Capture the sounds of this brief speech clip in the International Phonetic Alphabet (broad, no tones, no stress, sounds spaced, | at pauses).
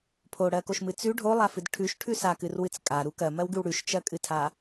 pʰ o ɽ ɜ k o ʃ m ɨ t͡s ʉ ɖʱ o lˠ a f ɨ d ʈʰ ʉ ʃ ʈʰ ʉ s a k ɨ r w ɨ t͡s kʼ a ɾ u k ɜ m ɜ w ɡ ʉ w ɽ ʉ ʃ t͡ʃ ɜ kʼ ɨ tʰ a